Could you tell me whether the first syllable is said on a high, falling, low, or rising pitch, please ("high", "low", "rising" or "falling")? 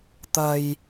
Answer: high